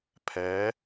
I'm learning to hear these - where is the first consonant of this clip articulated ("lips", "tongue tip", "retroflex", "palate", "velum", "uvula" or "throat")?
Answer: lips